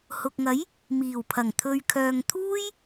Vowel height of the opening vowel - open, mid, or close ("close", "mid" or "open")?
close